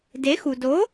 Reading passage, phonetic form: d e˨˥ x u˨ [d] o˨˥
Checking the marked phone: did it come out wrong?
no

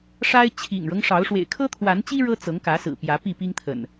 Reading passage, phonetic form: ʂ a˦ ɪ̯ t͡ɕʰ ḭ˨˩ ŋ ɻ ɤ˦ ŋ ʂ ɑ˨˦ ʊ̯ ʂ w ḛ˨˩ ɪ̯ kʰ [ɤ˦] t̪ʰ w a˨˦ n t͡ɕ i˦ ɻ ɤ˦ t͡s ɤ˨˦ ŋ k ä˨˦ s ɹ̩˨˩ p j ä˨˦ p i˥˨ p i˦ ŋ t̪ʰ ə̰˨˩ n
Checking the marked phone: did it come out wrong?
no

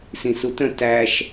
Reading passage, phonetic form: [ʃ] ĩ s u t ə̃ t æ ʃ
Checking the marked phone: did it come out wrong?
yes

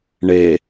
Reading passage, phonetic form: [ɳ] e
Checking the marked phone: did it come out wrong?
no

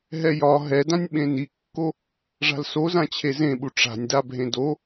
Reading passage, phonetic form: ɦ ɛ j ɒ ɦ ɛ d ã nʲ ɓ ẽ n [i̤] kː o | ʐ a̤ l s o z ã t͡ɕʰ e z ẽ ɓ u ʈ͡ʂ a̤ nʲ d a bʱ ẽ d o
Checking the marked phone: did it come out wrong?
yes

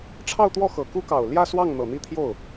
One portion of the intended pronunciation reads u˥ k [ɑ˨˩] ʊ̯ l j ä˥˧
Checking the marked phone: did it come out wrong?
no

